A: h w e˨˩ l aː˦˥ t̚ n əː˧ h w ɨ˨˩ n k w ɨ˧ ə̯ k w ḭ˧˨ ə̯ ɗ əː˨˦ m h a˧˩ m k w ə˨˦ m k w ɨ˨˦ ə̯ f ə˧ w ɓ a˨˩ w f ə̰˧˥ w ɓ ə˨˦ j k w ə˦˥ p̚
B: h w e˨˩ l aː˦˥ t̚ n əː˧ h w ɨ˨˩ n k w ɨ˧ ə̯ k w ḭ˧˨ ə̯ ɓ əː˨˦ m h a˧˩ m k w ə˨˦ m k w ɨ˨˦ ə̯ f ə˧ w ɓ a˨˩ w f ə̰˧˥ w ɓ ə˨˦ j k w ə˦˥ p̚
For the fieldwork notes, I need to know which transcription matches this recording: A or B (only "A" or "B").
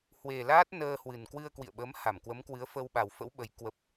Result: B